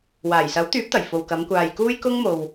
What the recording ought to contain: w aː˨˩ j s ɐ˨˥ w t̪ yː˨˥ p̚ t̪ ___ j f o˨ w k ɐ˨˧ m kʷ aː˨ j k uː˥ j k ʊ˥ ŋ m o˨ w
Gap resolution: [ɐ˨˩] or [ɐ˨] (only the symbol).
ɐ˨˩